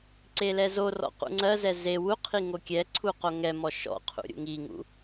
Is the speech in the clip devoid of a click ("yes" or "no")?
no